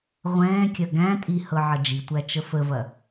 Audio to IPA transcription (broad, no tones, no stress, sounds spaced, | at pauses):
ʁʷ ɛ̃ː kʲ ɐ ɡ æ̃ tʼ i h ɤ ʕ ɐ d͡ʒ i tʷ æ t͡ʃ ə f ə v ɐ